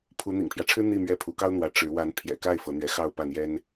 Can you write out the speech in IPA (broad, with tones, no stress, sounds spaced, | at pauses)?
pʰ u˧˥ n̪ ḭ˨˩ ŋ pʰ j ä˦ ʈ͡ʂʰ ɻ̩˥ n̪ i˥˧ m ɥ ɛ˥˩ pʰ u˧˥ k ɑ˥ ʊ̯ n̪ w ä˧˥ ʈ͡ʂ ɻ̩˧˥ w a˧˥ n pʰ j ɛ̰˨˩ k a˥˩ ɪ̯ f ɤ˧˥ n̪ ɥ ɛ˧˥ x ɑ˥˧ ʊ̯ p ä˥˩ n̪ j ɛ˥ n